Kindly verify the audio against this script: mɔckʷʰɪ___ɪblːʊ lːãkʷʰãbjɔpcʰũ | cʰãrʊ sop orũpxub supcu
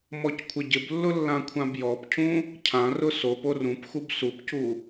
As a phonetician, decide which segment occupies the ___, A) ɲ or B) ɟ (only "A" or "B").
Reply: B